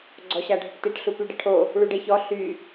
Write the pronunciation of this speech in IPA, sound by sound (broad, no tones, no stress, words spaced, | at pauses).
ɡ͡ǀɔɕaɖʱəʈteʈ ɬupyɖəʈʰo | ɭuɖeçɔ ɬy